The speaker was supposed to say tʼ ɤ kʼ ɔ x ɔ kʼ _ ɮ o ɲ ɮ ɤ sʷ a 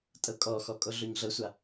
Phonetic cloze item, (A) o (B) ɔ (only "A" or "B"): A